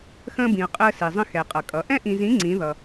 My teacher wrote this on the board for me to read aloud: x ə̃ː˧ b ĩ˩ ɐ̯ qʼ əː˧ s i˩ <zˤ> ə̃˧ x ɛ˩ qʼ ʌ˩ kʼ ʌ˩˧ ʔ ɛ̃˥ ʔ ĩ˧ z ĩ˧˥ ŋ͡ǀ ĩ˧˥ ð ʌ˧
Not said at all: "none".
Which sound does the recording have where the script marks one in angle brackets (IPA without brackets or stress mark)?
zˤ